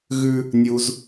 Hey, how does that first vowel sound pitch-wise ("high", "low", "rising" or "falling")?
high